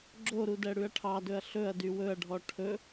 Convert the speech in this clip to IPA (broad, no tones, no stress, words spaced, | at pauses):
ɡ͡ǁoɾudɛ ɽʉɐ̯ʈʰɑdɵɐ̯ ɬɵɐ̯ dywɵɐ̯ɖʱɔ ʈʰɵ